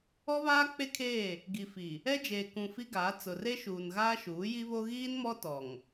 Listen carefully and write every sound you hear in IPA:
ɔ˦βaː˦k͡pe˦kʰeː˦˨ | ɡi˨fi˨ | ɛ˦d͡ʒeː˨ kũ˨ fi˦ɡaː˨˦ t͡sʊ˨re˦ʃuː˨n ɣaː˦ʃuː˨˦ji˦βo˦ ɣiː˦nmɔ˦ tɔ˨ŋ

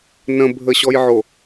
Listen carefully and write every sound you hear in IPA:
nə̃ bʱəɕɔjʕo

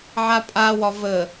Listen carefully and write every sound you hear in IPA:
ʕapʼa wɒvə

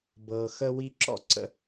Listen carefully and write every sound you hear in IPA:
bɤː˨xə˦wi˦ ǁɔ̰˥ǀə̰˦

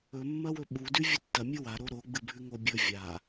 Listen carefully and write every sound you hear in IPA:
ɵmːɐwɵ ɓudʉ vʲɨtːɐ mʲɨwaɾo ɾo ɡ͡bɨbʱʉŋobʲɵ vʲa

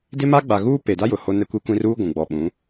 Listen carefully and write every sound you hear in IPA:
dɪ˦ma˦ ɡ͡ba˨ɣuː˦ pe˨da˦ jʊ˨ho˦ nɛ˦kʷi˦kʷĩ˦ ruː˦ɡʷũ˨ɡ͡bɔ˨ ɓũ˨˦

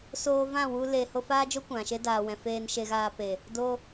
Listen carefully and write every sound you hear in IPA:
soː˧vã˦˨wu˧ le˨ ho˧faː˦d͡ʒo˦ kʷã˨ʃe˦ daː˨wɛ̃˨ feː˧nʃe˧ɣaː˧pe˨ | do˦

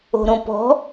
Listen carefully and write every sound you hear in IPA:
o̤ɾõpɔ̤

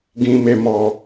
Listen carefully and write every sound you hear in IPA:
ɡĩ˨me˨mɔ˨

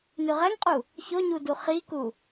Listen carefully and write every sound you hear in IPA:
nʉʁɛŋqʼu | çoɲudu χiku

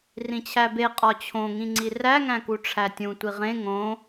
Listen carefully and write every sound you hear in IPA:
rĩt͡ɕʰæbe qʼɒt͡ɕʰõ ŋĩŋ͡ǀiræ ŋæ̃kuʈ͡ʂʰætʲũ tʷiʁẽ ŋõ

